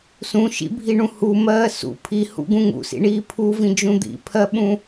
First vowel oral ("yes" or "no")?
no